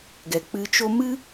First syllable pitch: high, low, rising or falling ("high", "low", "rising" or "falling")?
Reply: low